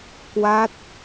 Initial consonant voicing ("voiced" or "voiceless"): voiceless